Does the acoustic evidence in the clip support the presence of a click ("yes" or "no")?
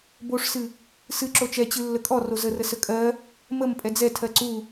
yes